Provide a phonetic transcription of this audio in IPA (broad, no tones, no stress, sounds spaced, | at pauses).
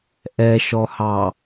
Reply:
ʔ ɛ ʃ ɔ h ɑ